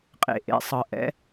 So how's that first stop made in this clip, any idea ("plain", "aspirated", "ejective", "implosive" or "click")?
ejective